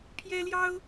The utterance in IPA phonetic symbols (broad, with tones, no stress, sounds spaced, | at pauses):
pʰ j ɛ˥ l j ɑ˥ ʊ̯